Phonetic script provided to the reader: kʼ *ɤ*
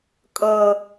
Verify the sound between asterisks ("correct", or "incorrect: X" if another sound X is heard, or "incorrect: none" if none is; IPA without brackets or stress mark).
correct